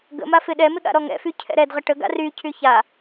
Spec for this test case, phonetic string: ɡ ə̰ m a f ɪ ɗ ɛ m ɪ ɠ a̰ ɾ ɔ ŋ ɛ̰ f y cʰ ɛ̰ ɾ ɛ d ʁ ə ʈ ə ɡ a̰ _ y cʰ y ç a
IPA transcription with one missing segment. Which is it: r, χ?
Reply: r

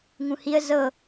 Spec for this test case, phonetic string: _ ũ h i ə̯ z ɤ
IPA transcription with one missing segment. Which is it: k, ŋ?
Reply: ŋ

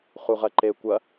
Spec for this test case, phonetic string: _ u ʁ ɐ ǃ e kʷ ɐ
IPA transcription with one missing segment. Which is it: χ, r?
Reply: χ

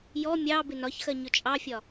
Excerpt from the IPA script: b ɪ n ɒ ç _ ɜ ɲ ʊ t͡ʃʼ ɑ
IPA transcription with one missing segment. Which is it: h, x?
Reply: x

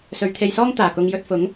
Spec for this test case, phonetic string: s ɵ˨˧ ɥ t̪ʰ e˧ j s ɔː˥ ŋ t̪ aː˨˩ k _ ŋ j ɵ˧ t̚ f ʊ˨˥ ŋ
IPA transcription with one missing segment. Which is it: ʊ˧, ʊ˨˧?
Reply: ʊ˧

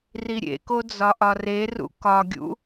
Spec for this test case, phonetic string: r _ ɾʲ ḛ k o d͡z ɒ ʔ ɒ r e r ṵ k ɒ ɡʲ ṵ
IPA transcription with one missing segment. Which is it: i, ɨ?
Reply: i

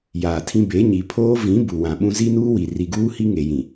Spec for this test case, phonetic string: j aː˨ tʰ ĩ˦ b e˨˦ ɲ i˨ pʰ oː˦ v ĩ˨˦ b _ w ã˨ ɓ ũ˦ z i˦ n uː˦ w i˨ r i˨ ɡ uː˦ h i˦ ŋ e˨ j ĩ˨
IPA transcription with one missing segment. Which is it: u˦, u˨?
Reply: u˨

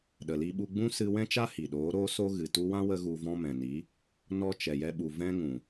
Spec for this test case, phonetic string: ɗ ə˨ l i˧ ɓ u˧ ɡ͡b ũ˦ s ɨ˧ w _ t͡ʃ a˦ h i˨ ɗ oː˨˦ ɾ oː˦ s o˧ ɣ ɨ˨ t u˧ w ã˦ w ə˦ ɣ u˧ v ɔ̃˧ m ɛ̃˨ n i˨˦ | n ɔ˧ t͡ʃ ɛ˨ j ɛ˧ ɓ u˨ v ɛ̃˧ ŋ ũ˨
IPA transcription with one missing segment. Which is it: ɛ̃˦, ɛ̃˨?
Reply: ɛ̃˦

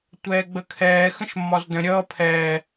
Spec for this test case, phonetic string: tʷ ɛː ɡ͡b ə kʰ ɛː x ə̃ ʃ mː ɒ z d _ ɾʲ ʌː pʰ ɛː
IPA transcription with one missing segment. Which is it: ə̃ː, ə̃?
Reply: ə̃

